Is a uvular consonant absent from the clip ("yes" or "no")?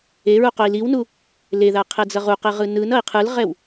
no